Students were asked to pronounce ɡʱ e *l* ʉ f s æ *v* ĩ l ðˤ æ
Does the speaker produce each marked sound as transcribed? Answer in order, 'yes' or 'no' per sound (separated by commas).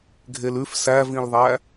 yes, yes